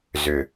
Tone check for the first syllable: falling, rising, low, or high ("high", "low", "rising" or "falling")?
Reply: low